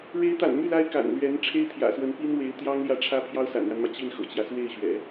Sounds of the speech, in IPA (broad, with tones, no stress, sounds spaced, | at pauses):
ɻ e˧˥ ɪ̯ t̪ a̰˨˩ n m y˥˩ l a˥ ɪ̯ k a̰˨˩ n l ɥ ɛ˧˥ n ʈ͡ʂʰ e˥ ɪ̯ t̪ʰ j ä̰˨˩ s w ə˧˥ n p i˥ n w e˧˥ ɪ̯ t̪ j ɑ˥ ŋ l j ä˥˩ ʈ͡ʂʰ ä˥ pʰ j ɑ˥ ʊ̯ s a̰˨˩ n ɻ a˦ n m ä˩ t͡ɕ i˥˩ n x ɤ̰˨˩ t͡ɕ j ä˦ s w e˥˩ ɪ̯ ɕ ɥ ɛ̰˨˩˦